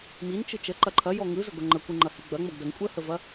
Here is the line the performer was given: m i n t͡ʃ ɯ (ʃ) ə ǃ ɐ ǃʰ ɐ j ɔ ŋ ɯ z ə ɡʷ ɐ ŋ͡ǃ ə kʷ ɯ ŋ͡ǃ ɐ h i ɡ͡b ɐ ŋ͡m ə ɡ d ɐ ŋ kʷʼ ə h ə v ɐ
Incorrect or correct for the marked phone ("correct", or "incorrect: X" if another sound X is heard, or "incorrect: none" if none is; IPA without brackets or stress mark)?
incorrect: t͡ʃ